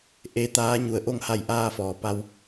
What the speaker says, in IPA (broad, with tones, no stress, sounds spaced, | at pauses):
ʔ e˧˥ t̪ aː˧˥ ɲ u˩ ə̯ ʔ o˥˨ ŋ h a˧˩ j ʔ aː˧ f ɔː˩ p a˧ w